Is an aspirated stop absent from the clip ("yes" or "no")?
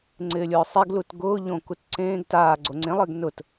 yes